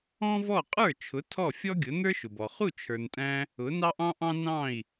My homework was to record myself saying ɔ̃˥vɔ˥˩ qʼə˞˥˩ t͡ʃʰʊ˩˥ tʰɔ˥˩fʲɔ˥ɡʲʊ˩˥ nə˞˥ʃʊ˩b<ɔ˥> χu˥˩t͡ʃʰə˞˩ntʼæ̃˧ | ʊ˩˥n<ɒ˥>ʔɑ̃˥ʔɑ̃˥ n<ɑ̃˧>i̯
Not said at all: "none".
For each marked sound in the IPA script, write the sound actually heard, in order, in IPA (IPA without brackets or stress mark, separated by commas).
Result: ɔ˩, ɑ˥, ɑ̃˥˩